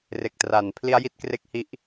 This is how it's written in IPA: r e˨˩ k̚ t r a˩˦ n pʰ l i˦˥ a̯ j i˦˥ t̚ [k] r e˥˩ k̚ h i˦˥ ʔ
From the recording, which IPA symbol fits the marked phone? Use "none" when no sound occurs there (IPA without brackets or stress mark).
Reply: k